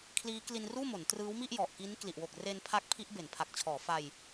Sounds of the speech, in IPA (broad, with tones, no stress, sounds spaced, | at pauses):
kʰ l iː˦˥ k l i˧ n r uː˥˩ m o˩˦ n t r ɯː˦˥ w m i˥˩ ʔ j ɔ˨˩ ʔ k i˦˥ n k l i˨˩ ʔ w o˨˩ k̚ r e˧ n pʰ a˦˥ k̚ pʰ i˦˥ ʔ b e˩˦ n pʰ a˨˩ k̚ t͡ɕʰ ɔː˩˦ f a˧ j